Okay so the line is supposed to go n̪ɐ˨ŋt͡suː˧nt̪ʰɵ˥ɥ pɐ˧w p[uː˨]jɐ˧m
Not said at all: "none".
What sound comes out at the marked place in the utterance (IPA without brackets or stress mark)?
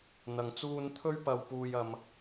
uː˧